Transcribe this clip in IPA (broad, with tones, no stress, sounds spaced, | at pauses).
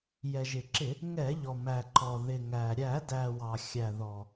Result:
j ɛ˩ ʒ ɪ˩ ǁ ɪ˧˩˧ | ŋ ɛ˧˩˧ ʎ ɔ˩ m æ˩ ǃ ɔ˩ ð ɪ˩ ŋ æ˩ ɾʲ æ˧˩˧ d æ˩ w ɑ˩ xʲ æ˩ ð ɔ˩